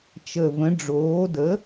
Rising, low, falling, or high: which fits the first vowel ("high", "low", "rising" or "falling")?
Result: low